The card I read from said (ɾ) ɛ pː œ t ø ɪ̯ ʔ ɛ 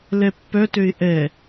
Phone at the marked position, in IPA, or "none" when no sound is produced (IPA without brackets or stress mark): l